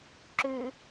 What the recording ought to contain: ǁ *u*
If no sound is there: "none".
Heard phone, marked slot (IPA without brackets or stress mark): ʉ